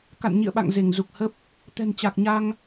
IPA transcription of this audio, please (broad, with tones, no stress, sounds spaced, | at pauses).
k a̰˧˨ n ɲ ḭ˧˨ ə̯ ɓ a̰˧˨ ŋ z e˧˩ ŋ z u˨˩ k̚ h ə˦˥ p̚ | t̪ ɛ̤˨˩ n t͡ɕ a˨˩ k̚ ɲ a˧ ŋ